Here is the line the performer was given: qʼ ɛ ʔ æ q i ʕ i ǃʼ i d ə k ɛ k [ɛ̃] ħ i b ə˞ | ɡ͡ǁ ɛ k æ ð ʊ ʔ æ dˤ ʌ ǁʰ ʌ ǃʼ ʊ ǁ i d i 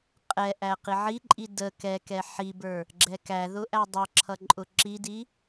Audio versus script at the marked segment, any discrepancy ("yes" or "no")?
yes